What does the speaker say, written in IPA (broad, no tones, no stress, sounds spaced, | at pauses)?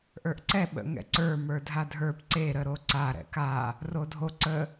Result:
ʔ ə˞ ʔ ǀ ɛ ɓ ə̰ ŋ ɛ̰ ǀ ə˞ m ə˞ dʱ a dʱ ə˞ p ǀ e ɾ ə ɾ o ǀ a ɾ ɛ̰ k a | r o dʱ o ǀ ə